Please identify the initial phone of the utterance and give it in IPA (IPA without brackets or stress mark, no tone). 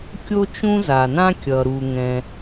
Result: kʲ